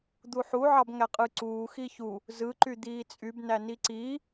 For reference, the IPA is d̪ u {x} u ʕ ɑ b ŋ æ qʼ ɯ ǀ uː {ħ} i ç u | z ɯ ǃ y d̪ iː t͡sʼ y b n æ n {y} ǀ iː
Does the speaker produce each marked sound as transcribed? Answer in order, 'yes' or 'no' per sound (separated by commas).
no, no, no